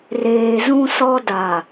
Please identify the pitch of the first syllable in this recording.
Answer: low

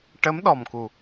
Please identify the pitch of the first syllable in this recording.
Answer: rising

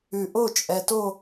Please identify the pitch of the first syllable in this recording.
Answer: low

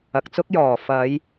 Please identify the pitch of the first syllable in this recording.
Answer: low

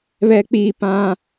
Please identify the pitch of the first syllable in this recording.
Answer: low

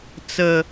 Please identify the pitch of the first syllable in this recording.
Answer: low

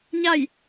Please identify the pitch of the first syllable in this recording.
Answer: falling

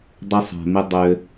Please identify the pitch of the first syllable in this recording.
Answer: high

